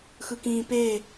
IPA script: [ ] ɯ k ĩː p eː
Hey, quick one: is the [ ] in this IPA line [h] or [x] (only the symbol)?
x